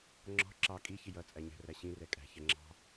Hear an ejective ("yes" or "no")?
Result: yes